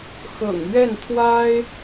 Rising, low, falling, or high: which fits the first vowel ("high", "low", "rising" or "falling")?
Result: low